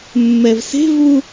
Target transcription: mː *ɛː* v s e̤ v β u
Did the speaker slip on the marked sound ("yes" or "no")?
yes